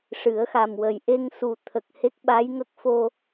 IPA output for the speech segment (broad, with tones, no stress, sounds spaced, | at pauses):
ʂ ɨ˨˩˦ ə̯ x a˨˩ m w ə˨˩ j ʔ e˧ ŋ s u˨˩ t̪ʰ ə˨˩ k̚ h e˦˥ k̚ ɓ a˧˥ j ŋ ə˦˥ k̚ f o˧